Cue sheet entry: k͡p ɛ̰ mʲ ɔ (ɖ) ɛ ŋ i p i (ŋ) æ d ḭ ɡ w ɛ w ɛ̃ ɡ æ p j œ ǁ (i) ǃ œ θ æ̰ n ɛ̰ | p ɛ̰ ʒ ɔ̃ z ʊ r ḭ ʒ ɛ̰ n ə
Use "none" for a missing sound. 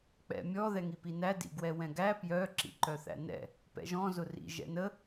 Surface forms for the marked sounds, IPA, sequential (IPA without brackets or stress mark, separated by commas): ð, n, ḭ